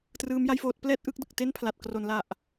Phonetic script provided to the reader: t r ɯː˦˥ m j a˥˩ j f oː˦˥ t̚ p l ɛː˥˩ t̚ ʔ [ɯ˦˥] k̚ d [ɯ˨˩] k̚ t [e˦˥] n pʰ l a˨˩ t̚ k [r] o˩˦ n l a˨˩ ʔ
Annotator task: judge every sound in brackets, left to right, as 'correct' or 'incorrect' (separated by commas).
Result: correct, correct, incorrect, correct